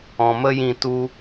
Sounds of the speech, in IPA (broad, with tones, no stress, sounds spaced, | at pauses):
ɔ̃˨ m ə˦ j ĩ˧ t u˦